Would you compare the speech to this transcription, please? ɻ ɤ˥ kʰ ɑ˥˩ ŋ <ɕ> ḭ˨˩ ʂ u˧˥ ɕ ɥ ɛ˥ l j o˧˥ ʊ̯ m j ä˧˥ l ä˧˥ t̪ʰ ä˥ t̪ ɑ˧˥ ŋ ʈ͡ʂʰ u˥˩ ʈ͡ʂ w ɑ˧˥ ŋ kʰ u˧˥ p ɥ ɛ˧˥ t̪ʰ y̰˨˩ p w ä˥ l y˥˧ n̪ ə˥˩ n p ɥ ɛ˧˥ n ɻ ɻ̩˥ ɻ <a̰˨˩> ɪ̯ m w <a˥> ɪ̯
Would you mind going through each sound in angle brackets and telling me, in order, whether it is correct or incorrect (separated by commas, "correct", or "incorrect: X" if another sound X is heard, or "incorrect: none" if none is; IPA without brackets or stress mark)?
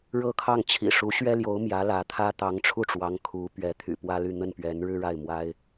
incorrect: t͡ɕʰ, incorrect: a˥˩, correct